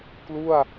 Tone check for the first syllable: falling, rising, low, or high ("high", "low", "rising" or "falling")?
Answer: falling